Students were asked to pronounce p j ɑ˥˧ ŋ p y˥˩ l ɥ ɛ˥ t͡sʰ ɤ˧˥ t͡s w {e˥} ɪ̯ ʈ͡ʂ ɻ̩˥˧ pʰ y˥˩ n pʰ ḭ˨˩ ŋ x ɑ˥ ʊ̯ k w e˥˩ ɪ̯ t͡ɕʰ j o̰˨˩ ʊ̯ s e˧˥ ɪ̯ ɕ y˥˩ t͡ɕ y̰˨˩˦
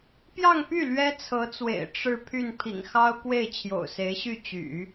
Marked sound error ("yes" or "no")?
yes